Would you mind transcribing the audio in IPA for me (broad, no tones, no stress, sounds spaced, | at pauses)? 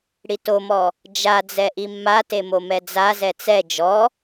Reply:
ɽ i t o m ɔ | d͡ʒ a d͡z ɛ ʔ i mː a t e m o m ɛ d͡z a z ɛ t͡s ɛ d͡ʒ ɔ